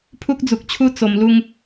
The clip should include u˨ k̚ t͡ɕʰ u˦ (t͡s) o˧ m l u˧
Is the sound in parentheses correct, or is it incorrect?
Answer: correct